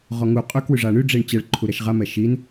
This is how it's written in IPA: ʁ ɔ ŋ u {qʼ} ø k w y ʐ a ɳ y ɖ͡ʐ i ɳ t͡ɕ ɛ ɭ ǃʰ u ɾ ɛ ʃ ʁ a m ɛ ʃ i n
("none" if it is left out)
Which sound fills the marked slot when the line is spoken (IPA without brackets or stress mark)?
qʼ